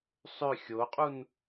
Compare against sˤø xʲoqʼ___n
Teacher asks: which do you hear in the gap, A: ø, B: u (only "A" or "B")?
B